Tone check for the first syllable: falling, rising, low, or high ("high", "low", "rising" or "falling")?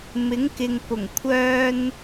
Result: rising